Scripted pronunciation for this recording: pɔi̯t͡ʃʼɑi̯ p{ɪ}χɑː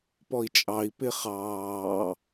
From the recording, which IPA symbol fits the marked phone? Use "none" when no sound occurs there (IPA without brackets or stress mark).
ɪ